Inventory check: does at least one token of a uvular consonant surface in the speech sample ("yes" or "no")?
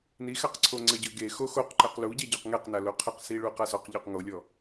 yes